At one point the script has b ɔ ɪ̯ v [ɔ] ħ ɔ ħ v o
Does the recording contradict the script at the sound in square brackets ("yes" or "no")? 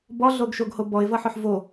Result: yes